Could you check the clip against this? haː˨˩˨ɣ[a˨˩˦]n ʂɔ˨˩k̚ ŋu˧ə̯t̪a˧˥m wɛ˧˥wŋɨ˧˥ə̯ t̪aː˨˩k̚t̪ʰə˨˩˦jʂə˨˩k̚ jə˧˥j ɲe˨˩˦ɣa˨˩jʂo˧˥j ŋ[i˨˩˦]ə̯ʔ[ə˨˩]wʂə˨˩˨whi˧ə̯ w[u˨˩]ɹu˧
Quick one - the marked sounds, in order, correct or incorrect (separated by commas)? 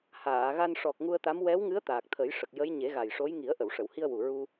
incorrect, correct, incorrect, correct